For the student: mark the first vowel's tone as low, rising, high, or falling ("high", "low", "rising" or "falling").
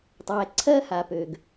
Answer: low